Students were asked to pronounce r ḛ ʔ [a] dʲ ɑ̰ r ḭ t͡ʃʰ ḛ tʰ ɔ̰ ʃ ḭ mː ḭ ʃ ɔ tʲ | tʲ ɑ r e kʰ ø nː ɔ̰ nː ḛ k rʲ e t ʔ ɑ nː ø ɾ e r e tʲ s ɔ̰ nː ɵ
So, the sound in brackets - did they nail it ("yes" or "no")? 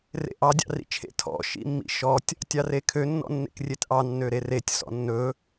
no